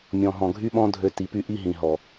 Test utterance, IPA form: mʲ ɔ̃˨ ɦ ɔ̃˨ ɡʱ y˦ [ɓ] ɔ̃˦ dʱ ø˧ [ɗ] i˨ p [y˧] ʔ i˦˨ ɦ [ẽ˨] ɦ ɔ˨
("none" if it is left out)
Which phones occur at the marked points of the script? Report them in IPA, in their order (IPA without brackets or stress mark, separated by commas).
ɓ, t, y˧, ĩ˨